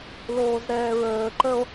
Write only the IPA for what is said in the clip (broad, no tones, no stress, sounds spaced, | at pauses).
l oː z ɾ ɛː ɹ əː ǃ ə o̯